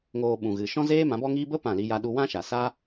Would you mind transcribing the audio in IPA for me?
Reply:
ŋ oː˧ ɓ ũ˨ ɣ ɨ˨ ʃ ɔ̃˦ z eː˦ m ã˨˦ b ɔ˦ ŋ iː˦ b ə˦ p ã˦˨ l i˦ j a˦ ɗ u˧ w ã˦ ʃ a˨ s a˦

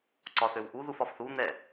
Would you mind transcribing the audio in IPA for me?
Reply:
ǀ ɒ θ ø w ʔ u ð u f ɒ f θ u n̪ ɛ

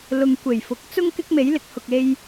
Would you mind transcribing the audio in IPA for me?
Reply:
l ʊ˨ ŋ kʷ e˨˩ j f ʊ˨˥ k̚ t͡s ʊ˥ ŋ k ɪ˧ k̚ m e˨˧ j l ɪ˨ k̚ h ʊ˨ k̚ e˧ j

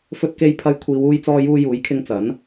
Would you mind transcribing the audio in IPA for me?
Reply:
f ɵ˧ t̚ k e˧ j pʰ ɐ˧ j kʷʰ iː˨˧ w uː˧ j t͡s ɔː˧ j uː˧ j uː˨˥ j kʰ ɪ˧ ŋ t͡s ɐ˨˥ n

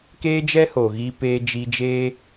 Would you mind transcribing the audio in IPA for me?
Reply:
k eː˦ d͡ʒ ɛ˦ h o˨ ɣ i˧ p eː˧ d͡ʒ i˧ d͡ʒ eː˦

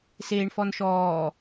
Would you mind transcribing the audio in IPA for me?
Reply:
s eː ɳ f ɔ n ʃ ɔː

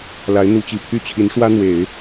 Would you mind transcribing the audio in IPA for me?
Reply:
l a˧˥ ɪ̯ n̪ u˧˥ t͡ɕ i˨˩ pʰ y˥˩ t͡ɕʰ i˧˥ n ʂ w ä˥ n̪ w e˨˩˦ ɪ̯

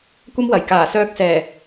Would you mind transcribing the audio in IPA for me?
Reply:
kʷ ɐ˥ m w ɐ˨˩ j k aː˨˩ s œː˧ k̚ s ɛː˨˩

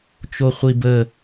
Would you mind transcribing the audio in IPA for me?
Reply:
t͡ʃ o χʷ i b ə

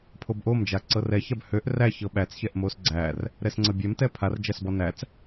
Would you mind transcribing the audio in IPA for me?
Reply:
pʰ o b ʔ o m d͡ʒ a ǀ ɤ r ɛ ç a b h ø ʔ r æ ç ɤ ɓ æ t͡s ç ɛ ʔ m o s ɡ͡ǀ æ r | ɾ ɛ s ŋ͡ǀ ɤ bʲ ɛ m t ɛ pʰ a r d͡ʒ æ s b ɔ n æ t͡s

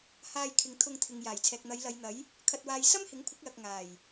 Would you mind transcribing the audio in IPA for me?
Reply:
h aː˧ j kʰ ɪ˨ ŋ t̪ʰ ʊ˧ ŋ t̪ʰ ɪ˨ ŋ j aː˨˩ j t͡sʰ ɛː˨ k̚ n̪ ɐ˨˧ j l ɐ˨˧ j n̪ ɐ˨˥ j | kʰ ɐ˨ t̚ w aː˨ j s ɐ˥ m h ɪ˨˥ ŋ kʷʰ ɪ˨˥ k̚ l ɐ˨ k̚ ŋ aː˨˩ j

